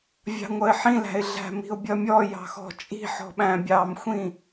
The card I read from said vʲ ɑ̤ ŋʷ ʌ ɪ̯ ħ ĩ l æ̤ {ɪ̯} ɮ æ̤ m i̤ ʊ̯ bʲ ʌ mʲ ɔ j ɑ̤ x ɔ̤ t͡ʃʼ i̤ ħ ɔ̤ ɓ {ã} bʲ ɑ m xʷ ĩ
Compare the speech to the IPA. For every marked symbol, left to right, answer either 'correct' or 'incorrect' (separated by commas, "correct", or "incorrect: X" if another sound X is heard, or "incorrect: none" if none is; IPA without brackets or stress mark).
correct, incorrect: æ̃